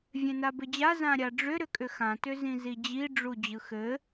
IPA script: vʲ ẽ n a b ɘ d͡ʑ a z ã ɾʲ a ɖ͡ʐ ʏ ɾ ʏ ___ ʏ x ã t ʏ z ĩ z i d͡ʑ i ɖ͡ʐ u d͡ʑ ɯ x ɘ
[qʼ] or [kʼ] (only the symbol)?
kʼ